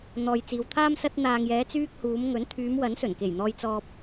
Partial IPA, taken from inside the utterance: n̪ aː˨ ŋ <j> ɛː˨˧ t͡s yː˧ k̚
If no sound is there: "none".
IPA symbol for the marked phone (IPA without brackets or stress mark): j